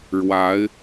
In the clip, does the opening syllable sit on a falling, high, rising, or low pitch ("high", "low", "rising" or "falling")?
rising